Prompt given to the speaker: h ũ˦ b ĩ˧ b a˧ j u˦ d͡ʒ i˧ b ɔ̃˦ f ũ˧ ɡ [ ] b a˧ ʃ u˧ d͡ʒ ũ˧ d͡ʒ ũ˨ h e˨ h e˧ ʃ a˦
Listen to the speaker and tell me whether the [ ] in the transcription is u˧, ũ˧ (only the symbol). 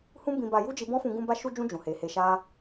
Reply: ũ˧